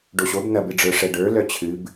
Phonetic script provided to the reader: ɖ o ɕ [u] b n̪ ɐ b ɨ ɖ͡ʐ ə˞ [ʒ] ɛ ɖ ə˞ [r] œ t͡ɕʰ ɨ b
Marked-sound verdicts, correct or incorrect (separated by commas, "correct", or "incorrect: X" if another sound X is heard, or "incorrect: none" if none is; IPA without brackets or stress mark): incorrect: o, incorrect: ʂ, incorrect: l